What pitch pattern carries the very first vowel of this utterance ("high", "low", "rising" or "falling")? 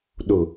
low